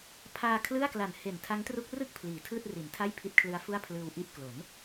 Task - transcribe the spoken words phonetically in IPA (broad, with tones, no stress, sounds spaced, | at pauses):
pʰ aː˧ kʰ l ɯ˥˩ a̯ k l a˨˩ n h e˨˩ n tʰ a˦˥ ŋ t r u˦˥ k̚ r ɯ˥˩ k̚ pʰ l iː˩˦ tʰ ɯː˥˩ t̚ r i˩˦ n tʰ a˥˩ j pʰ i˦˥ t̚ kʰ l ɯ˦˥ a̯ f u˥˩ a̯ pʰ l ɯː˧ w ʔ i˥˩ ʔ k l o˩˦ n